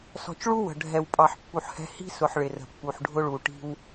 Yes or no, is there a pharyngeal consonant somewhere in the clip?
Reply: yes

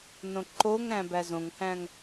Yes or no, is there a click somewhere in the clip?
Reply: yes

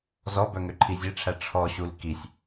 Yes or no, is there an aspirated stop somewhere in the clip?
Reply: yes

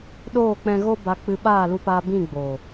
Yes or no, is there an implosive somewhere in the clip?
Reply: yes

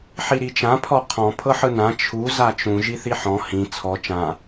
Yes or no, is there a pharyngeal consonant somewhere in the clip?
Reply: yes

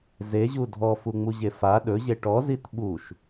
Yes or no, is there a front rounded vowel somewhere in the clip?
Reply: no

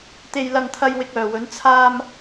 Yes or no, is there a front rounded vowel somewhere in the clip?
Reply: yes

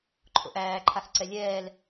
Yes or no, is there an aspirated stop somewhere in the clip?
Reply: yes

